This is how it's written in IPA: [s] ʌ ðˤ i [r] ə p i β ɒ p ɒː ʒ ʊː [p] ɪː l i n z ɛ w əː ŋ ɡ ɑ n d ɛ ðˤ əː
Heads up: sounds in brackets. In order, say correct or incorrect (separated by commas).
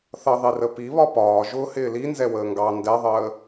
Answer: incorrect, correct, incorrect